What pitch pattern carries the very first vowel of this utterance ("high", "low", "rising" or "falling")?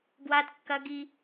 high